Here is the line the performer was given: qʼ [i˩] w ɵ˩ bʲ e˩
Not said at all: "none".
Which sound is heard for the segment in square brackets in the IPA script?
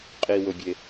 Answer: i˩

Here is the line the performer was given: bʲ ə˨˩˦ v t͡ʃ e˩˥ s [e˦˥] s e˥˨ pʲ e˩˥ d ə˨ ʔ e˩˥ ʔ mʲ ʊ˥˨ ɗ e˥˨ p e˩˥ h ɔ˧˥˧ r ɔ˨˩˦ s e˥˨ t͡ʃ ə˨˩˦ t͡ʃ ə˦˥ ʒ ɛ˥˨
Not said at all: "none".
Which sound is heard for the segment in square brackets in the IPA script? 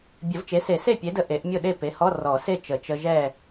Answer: e˨˩˦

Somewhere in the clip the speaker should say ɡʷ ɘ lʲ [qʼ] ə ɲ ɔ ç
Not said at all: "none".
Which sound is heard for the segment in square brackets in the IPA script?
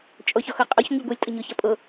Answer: tʼ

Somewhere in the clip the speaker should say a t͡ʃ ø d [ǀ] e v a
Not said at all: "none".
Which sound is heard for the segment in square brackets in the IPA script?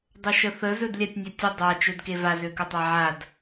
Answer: k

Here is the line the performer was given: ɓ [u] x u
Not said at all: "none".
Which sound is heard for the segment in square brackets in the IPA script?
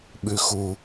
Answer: ʉ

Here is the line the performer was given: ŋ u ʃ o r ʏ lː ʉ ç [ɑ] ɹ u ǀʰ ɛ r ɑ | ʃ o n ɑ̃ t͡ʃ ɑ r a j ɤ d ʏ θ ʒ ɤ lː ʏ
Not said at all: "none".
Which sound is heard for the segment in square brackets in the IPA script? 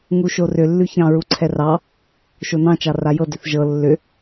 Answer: ɑ̃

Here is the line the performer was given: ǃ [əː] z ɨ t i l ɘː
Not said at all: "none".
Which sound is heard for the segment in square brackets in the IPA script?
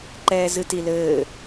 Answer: ɛː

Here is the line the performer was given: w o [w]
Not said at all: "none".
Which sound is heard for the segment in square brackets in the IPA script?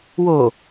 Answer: none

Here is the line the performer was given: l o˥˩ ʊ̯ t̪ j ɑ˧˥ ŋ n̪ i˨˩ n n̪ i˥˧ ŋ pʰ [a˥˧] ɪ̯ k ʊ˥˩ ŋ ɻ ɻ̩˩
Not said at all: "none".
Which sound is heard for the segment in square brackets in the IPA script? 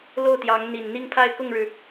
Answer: a˥˧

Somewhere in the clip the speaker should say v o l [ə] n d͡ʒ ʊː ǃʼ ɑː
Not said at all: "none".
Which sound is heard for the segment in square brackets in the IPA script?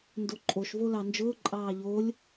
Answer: ɑ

